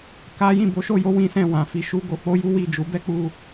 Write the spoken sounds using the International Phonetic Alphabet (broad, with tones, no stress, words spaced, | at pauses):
ka˦ jĩ˦˨bo˨˦ʃo˦˨jo˧ wĩ˦sɛ̃˦˨wã˨fi˧ ʃu˦ɡo˧k͡po˦ ju˦wi˦˨d͡ʒu˨˦ bɛ˦k͡pu˧